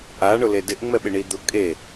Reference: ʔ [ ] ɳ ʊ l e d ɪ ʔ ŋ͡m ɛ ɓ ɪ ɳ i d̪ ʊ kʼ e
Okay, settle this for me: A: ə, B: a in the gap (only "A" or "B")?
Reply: B